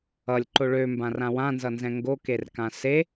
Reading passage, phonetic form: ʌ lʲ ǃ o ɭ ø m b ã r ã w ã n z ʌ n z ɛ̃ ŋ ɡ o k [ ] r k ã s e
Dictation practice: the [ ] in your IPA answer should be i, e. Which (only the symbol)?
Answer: e